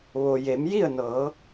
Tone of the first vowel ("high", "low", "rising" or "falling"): low